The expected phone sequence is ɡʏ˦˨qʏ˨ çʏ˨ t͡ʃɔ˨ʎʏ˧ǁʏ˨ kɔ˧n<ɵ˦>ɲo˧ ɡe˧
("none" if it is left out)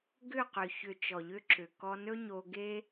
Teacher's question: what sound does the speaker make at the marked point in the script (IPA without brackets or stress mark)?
ɵ˦